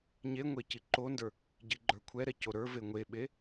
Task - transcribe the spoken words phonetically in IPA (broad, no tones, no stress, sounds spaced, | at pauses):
ɲ e ŋʷ e c i ǃ o n d ə˞ | ɟ i ɡ͡ǃ ə˞ kʷʰ ɛ ɾ ɛ c o ɾ ə˞ v e ŋʷ e ɓ e